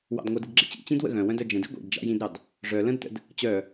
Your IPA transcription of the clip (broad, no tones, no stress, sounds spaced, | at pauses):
w ɑ̰ d ŋʷ œ d ɨ d ɡ͡ǁ ɪ t͡ɕ ḭ t͡ɕ ĩ d w ə̰ ɣ œ̃ w œ̃ d œ d͡ʒ ə̃ d ḭ ɡʷ ḭ d d͡ʒ ɑ̰ j ĩ d ɾ ɑ d | ʐ œ l ə̃ d t ə̰ d | t͡ɕ œ